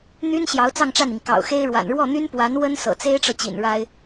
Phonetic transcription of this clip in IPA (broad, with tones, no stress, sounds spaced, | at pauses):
n̪ y˥ n ɕ j ɑ˧˥ ʊ̯ t͡s ɑ˥˧ ŋ ʈ͡ʂ a˥˩ n i˩ ŋ k ɑ̰˨˩ ʊ̯ x e˥ ɪ̯ ɻ w a̰˨˩ n ɻ w ɔ˥˩ n̪ y˥ n p w a˧˥ n w ə˥ n s ɤ̰˨˩ t͡s e˥ ɪ̯ ʈ͡ʂ ɤ˨ t͡ɕ ḭ˨˩ n ɻ a˥ ɪ̯